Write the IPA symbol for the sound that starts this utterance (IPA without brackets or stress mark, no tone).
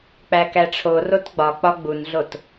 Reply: k͡p